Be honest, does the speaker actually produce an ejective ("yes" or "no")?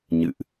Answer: no